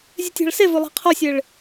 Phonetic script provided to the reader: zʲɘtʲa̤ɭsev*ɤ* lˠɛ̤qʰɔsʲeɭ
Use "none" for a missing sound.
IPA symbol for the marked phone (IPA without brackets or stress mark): o